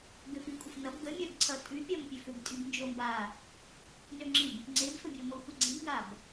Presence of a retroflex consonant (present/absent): absent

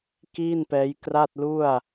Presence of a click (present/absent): absent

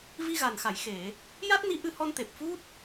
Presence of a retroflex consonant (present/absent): absent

